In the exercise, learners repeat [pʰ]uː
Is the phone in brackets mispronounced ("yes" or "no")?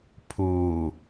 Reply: no